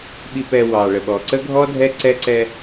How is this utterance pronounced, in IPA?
ɓ i˨ p ɛ˨ w ɑ˨ ɭ ə˨ ɓ ɔ˨ ǀ ə˦ ɡʱ ɔ˦ dʱ ɛ˦ ǀ ɛ˦ ǀ ɛ˦

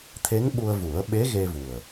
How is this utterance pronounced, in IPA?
t̪ʰ e˧˥ ŋ ɓ u˧ ə̯ v u˨˩˦ ə̯ ɓ e˧˥ ɣ e˧ v u˨˩ ə̯

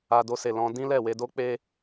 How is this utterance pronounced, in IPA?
a˧ d o˧ s e˨ l ɔ̃˧ d ĩ˦ l ɛ˦˨ w e˧ d o˦ k͡p e˧

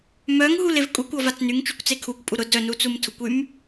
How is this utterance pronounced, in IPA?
m œ ŋ ɦ u l e v kʼ u kʷ ɔ v a t͡s n y ŋ t͡ʃ y kʷ t͡s e kʰ u kʷ pʼ u ɾ ʊ d œ n u t͡s u m tʰ ʊ kʷ y m

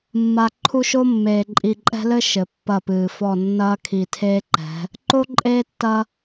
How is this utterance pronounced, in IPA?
mː a˨ ǃʰ u˦ ʃ o˦ mː eː˨ ǃʼ i˨ ǃʼ ɛ̤˦ l ɘ˦ ʃ ɘ˨ pː ɐ˦˨ p ɨː˨ f ɔ˦˨ nː ɐː˦ kʰ i˨ tʰ eː˦ ǃ ɛ̤˨˦ | ǃ o˦ ǃʼ eː˦ tː ɐ˦

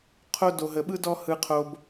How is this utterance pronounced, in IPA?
qʰ o˦ d o˧ ɦ ə˧ ɓ ɯ˦ d ɔ˦ h ɯ˦ qʰ o˦ b

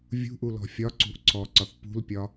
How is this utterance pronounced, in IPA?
vʲ ṳ ʔ u l ɔ̤ fʲ ɒ ǀ ṳ ʔ ǀʰ ɔ ǀ ɒ θ p ṳ l pʲ ɒ

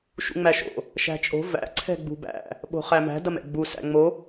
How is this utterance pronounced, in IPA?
ʃ ṵ ŋ͡m æ ʃ o̰ | ʃ æ̤ t͡ʃʼ o̤ v æ̰ ǀʰ ɛ̤ ɡ͡b ṳ b æ̰ | ɓ o̤ χ æ m æ̤ d ɐ m ɛ̰ ɡ͡b u s æ̰ ŋ͡m o

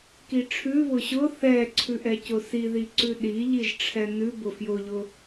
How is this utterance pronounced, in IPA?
k i ʈ͡ʂʰ ʉ β ʊ ɕ ʊ θ ɛ ǀʰ ʉ ʔ ɛ c ʊ s i ð i ǀ ʉ ɗ i ʎ i ʒ ʈ͡ʂʰ ɛ n ʉ b ʊ f j ʊ ʎ ʊ

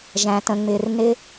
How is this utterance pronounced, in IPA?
ʒ æ̃˨ t ə̃˨ ŋ͡m ɪ˨ r n ɪ˦

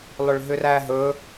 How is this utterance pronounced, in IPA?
lˠ ʏ ɭ ɦ ʏ r æ ɦ ɵ

